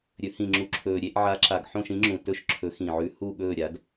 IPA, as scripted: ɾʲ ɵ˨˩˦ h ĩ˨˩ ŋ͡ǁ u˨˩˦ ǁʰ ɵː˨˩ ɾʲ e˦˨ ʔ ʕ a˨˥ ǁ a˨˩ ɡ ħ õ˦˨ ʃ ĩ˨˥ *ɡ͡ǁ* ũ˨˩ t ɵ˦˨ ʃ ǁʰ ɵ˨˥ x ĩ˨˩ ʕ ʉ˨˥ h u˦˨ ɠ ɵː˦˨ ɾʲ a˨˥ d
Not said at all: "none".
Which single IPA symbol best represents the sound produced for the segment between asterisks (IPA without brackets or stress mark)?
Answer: ŋ͡ǁ